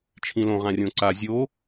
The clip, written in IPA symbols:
t͡ʃʰ ĩ l õ ʁ ã rʲ õ ǀ a zʲ o

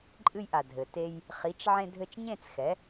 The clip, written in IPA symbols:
ǃʼ ɨ˧ j ʔ a˩ dʱ ɘ˩ t e˧ j | χ i˩˥ t͡ʃ ʕ ẽ˧ dʱ ɘ˧ t͡ʃ ɲ ẽ˥˩ t͡s x ɛ˩˥

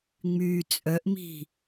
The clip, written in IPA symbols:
ŋ͡m yː t͡sʼ œ ʔ m i̤

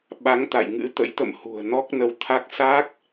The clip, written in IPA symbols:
ɓ a˨˦ ŋ t̪ a̰˧˨ j ŋ ɨ̰˧˥ t̪ ə̰˧˥ j t̪ ə̰˧˨ m h ṳ˨˩ ə̯ n ɔ˦˥ k̚ n ə˧ w t̪ʰ a˦˥ k̚ s a˦˥ k̚

